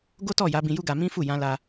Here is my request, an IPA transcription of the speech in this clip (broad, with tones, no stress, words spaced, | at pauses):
ɡo˦tɔ˦˨ ja˨˦ bĩ˧ju˦ɡa˧ mĩ˦fu˦˨ jã˧la˧